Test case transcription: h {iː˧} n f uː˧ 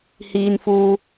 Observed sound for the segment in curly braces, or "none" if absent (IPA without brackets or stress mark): iː˧